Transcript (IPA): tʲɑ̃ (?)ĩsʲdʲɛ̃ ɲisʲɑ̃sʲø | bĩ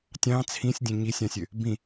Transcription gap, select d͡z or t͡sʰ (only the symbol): t͡sʰ